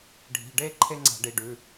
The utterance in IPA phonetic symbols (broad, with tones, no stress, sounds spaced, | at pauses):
ɖʱ i̤˩˧˩ ɖ e˦˥ ǃʰ e˦˥ ŋ͡ǀ a̤˧˩˧ ɖ i˩˧˩ ɖ ʉ˩˧˩